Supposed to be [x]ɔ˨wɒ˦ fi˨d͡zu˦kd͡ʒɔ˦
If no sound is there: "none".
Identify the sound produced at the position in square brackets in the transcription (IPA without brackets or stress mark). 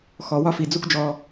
x